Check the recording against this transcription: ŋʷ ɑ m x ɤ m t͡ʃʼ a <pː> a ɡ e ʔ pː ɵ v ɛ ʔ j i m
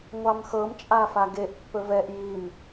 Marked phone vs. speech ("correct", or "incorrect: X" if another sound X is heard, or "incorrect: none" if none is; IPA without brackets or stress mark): incorrect: f